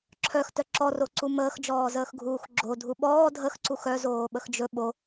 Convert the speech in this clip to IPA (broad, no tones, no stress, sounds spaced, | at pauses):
ǁʰ œ x t œ ǁ ɔ r o ǀ u m əː x d͡ʒ ɔː z əː x ɡʱ uː x ɡ͡ǁ o dʱ u ɓ ɔː dʱ ə x ǀ u x œ z oː ɓ ə x d͡ʒ ɵ ɓ o